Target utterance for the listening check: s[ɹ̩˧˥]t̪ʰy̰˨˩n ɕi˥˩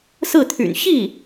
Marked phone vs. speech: incorrect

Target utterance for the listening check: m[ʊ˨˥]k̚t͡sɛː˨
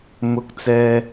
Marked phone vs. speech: incorrect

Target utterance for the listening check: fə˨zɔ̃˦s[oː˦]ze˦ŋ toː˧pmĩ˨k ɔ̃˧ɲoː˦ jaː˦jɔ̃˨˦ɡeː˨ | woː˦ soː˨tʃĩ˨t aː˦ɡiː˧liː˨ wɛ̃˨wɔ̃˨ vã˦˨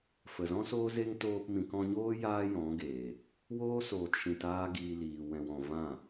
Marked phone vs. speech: correct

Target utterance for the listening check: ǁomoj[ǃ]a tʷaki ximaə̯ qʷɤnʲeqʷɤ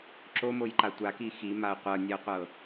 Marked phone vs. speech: correct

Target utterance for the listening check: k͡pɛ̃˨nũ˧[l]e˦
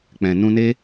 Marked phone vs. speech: incorrect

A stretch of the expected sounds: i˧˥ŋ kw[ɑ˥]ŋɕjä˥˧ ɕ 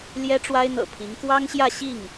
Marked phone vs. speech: correct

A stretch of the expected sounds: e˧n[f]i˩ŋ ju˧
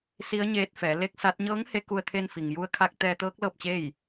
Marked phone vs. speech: correct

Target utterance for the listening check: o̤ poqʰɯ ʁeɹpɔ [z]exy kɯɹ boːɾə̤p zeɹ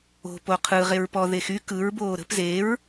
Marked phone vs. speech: incorrect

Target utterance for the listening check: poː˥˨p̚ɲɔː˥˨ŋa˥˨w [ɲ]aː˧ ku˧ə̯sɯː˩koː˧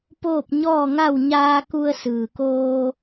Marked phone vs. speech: correct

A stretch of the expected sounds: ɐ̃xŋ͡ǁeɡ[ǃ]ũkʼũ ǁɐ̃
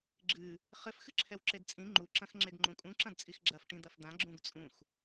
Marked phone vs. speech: incorrect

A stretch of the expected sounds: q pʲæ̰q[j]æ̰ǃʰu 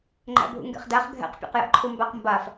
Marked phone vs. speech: correct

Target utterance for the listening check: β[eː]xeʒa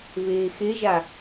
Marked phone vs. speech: correct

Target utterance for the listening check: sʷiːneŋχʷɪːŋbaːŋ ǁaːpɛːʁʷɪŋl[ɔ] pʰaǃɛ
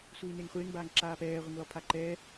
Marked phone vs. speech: correct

